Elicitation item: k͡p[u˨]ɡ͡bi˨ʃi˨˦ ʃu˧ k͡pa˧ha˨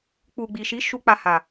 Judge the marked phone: correct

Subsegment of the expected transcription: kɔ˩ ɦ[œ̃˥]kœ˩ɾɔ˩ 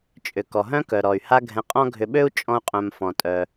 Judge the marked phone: correct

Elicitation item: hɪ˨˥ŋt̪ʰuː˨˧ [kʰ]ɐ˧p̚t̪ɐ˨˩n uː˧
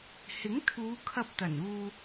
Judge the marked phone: correct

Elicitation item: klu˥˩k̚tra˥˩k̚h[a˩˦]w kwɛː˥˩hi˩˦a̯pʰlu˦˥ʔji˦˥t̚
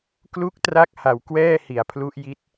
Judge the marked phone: correct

